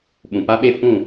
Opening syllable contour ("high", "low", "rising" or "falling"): low